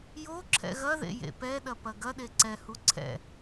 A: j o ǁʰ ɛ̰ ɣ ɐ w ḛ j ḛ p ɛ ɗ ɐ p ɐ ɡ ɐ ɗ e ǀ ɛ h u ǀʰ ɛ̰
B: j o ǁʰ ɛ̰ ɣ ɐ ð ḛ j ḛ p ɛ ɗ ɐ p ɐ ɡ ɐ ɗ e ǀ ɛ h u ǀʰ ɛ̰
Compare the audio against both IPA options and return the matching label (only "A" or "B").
B